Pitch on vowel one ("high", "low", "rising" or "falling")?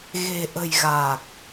low